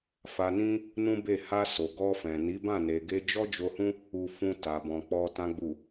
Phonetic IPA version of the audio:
fa˧nĩ˦ | nũ˦be˦˨ ha˧ so˨ɡɔ˧fɛ̃˨ ni˨˦bã˦˨ ne˨ɡe˧ d͡ʒɔ˦d͡ʒo˧hũ˦ | u˧fũ˧ ta˨bɔ̃˨k͡pɔ˧ tã˨ɡ͡bu˨

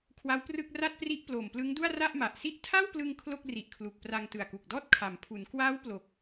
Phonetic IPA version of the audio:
kʰwa˦˥wprɯ˥˩k̚ ra˥˩t̚ pri˦˥ʔ ploː˨˩mplɯ˦˥ŋdu˥˩a̯ ra˥˩ʔma˨˩ʔsi˥˩ʔ tʰa˥˩wplɯ˧ŋ kʰlo˥˩k̚ri˨˩ʔkʰlu˨˩k̚ pra˧ŋtɯ˨˩a̯ku˨˩k̚dɔː˥˩t̚ kʰa˩˦mpʰu˩˦n kwaː˦˥w plo˨˩k̚

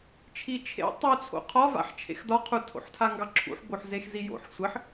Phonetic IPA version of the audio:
t͡ʃʰit͡ʃʰḛ tˤut͡sʰo̰ qʰɒva̰ħt͡ʃʰḛx dɒqʰu tʰo̰ħtʰaŋɡɑǁʰṵħ boħzexzijo̰ħ sʷɘħ

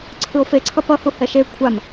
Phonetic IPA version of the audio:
ǀʰɯo̯feǀʰʌ pʌhu hɛʃe kʷʰam

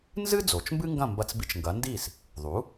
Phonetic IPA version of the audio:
nzɨ˥ d͡zo˩t͡ʃmbɨ˥ŋɡɐ̃˥˩ mbɐ˧t͡sbi˧t͡ʃ ŋɡɐ˩˥ndi˥˩s | ðˤu˩˥

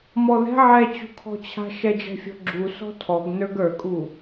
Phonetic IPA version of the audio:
mɔðɛ̤ ʕɛt͡ɕṳkʰɔ̤t͡ɕʰa̤ ʃɛd͡ʒɛ̤fʲɔ̤ɡ͡ǁu sɔ̤tʰɔɡ nə˞ɡə˞kʼu

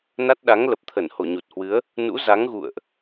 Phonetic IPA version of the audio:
na˦˥t̚ɗa˨˦ŋ lə˨˩p̚t̪ʰə˧˩nho˧˩ ɲu˨˩t̚hwɨ˨˦ə̯ | nṵ˧˥ za˨˦ŋɣṵ˧˨ə̯ʔ

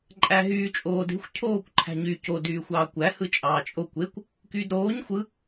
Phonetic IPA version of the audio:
ǃʼæɦyː t͡ʃʼoːde̤xʷ cʰoːkʷ ǃʰæ̤ɲy co dyːxʷɑːkʷæ hɯt͡ʃʼɑːt͡ʃʼo kʷekʷ | kyːdɾoːɲ xʷɯ

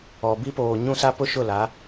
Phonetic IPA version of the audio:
ɔ˨ bi˦poː˨ ɲũ˦sa˦ pʊ˦ʃʊ˦˨la˨˦

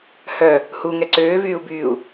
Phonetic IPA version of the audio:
hœ | huŋɛ ǀøːvyːu̯byːu̯

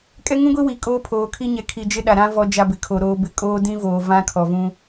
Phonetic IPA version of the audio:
kʼɛ˦ŋũ˦ɡʷi˦ wi˨kʼoː˦ pʰoː˨kʰi˦ɲɛ˨ kʰi˨d͡ʒɪ˦ɗa˨ɾã˦ vɔ˦d͡ʒa˦bɪ˨kʰo˨ ɾoː˨bɪ˨ kʼoː˦dĩ˦voː˨ vã˦kʰɔ˨vũ˦

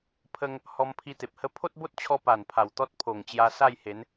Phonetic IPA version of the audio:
pʰə˧ŋ | hɔ˧mpʰi˧t̪e˨p̚hə˦ pʰo˦t̚bo˦t̚t͡ɕʰɔ˧ pa˨˩npʰa˨˩wt̪ɔ˦t̚ pʰo˨˩ŋt͡ɕja˧ sa˥˧jhe˨˦n

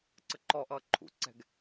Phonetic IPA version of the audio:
ǀəǃɔʔʌː ǃʰṵǀɛ̤ɡ

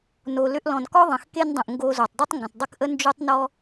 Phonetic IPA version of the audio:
no˨ lʏ˧ʔlɔ̃˨nkɔ˦ ðˤə̃˨xke˦ndˤə̃˨ʔ ŋɡo˧ zo˨tˤdˤo˦tˤŋɡə̃˨tˤ dˤə˦kʔə˦ nd͡ʒo˦tˤnɔ˦

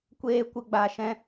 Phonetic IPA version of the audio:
kʷeː˦kʷə˦ ɡ͡ba˧ ʃɛ̃˦

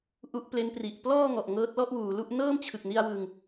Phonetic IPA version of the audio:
ʔu˦˥ʔple˦˥npri˨˩ʔ plɔː˥˩ ŋɔ˨˩ʔ ŋɤː˦˥t̚lɔ˥˩ʔwuː˩˦lu˥˩ʔ nɤː˥˩mt͡ɕʰɯ˨˩k̚ ni˧a̯wɯ˨˩ŋ

